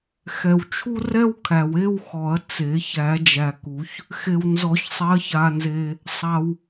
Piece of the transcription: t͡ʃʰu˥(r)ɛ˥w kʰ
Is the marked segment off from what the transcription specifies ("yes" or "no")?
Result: no